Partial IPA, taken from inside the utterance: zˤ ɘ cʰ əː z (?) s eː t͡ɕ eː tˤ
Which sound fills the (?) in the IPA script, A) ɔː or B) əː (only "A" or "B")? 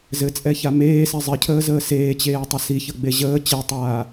B